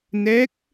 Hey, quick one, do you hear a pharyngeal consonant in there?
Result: no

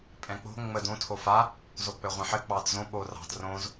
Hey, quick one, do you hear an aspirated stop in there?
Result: yes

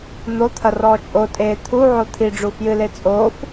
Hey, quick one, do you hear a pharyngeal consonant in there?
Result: yes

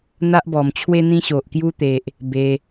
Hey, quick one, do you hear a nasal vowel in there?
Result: yes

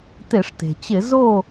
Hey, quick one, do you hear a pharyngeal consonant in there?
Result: no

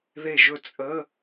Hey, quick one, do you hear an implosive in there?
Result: no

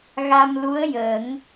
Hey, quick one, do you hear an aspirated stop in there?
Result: no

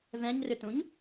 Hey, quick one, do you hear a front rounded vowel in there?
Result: yes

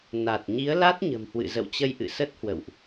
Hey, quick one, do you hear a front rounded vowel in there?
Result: no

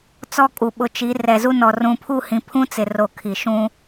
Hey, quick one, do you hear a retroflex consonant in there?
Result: no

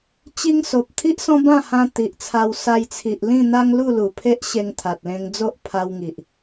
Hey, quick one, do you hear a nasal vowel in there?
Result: yes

